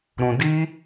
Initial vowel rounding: rounded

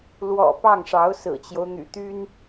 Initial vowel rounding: rounded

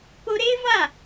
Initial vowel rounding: rounded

